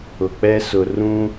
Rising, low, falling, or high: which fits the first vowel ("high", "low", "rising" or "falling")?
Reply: low